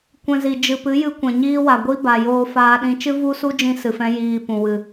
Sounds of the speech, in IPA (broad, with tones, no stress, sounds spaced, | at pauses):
kʷ ɛ̃˧ z i˨ d͡ʒ ɨ˧ p ɨ˨˦ j ɨ˧ kʷ ɛ̃˨ ɲ iː˦ w a˨ ɡʷ i˦ b a˨ j oː˧ f aː˦ ɗ ĩ˦ t͡ʃ ɨ˦ v u˦ s u˦ d͡ʒ ĩ˦ s ɨ˨ f ɛ̃˦ j iː˧ p ũ˨ w ɨ˨